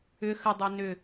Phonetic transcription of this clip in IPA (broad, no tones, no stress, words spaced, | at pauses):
ʏ xədˤɛ nʏ